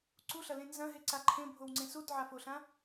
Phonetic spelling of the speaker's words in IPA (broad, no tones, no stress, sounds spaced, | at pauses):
ǀ u ɬ ɐ l ẽ n z ɐ̃ ɦ e ǀ a ǃʰ ẽ bʱ o w ŋ͡ǀ ẽ s u d ʕ a f o ɬ ã